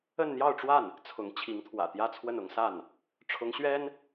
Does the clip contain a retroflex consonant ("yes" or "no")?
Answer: yes